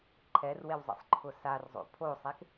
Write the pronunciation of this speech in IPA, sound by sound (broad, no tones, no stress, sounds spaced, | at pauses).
ǃʰ ɛ r w e w zˤ ḭ sˤ ǃʰ ʊ s a r zˤ o̰ pʰ o sˤ e k